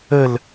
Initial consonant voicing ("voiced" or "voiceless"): voiced